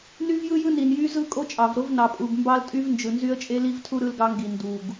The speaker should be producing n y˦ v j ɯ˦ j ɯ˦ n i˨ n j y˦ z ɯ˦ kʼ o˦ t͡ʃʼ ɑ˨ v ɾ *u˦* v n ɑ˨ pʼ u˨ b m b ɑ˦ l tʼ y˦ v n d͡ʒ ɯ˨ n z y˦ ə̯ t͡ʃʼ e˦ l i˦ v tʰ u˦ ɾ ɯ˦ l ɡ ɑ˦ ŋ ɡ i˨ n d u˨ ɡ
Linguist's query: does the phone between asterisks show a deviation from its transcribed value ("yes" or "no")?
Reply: yes